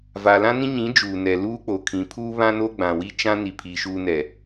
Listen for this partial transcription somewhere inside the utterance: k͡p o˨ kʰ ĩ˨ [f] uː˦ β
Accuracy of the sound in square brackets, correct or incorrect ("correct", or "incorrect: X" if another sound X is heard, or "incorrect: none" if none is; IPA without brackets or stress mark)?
incorrect: pʰ